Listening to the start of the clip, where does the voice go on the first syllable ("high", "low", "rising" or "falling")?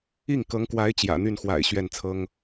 falling